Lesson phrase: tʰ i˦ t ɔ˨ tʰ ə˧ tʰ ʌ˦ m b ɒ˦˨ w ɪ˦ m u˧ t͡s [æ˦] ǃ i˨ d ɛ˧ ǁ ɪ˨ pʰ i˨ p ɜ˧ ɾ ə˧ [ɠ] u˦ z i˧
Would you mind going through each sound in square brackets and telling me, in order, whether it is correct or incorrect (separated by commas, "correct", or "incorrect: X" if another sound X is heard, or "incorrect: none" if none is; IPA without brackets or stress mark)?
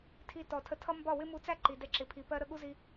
correct, correct